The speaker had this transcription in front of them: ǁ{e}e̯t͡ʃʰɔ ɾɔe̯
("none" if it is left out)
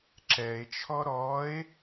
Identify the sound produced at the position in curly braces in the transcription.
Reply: ɛ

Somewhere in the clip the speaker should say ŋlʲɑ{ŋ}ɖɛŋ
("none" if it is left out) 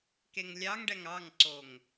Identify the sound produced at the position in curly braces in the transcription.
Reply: ŋ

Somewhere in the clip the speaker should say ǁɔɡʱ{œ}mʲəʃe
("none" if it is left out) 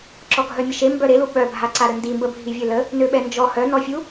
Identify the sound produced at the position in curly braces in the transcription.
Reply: œ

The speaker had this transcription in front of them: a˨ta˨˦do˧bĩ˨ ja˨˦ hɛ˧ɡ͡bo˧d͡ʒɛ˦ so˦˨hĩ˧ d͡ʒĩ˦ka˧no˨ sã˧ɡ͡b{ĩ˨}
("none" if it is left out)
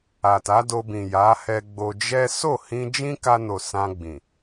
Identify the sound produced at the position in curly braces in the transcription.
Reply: ĩ˨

